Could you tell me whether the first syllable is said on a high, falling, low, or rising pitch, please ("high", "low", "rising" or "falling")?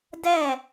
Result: falling